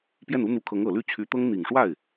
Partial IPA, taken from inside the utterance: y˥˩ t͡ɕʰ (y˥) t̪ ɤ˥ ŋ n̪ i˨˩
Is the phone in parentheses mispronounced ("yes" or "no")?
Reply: yes